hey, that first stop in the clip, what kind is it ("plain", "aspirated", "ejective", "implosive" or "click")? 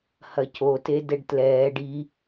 plain